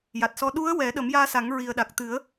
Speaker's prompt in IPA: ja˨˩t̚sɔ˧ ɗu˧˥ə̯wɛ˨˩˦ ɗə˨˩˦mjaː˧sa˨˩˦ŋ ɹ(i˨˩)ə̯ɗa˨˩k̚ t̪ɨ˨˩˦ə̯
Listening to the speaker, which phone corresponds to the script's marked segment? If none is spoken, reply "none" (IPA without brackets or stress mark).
i˨˩